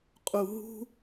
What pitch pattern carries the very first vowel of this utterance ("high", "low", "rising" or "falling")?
high